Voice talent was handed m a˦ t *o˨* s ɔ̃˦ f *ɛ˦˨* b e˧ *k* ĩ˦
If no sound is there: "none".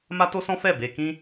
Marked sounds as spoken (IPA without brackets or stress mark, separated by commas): o˦, ɛ˦˨, k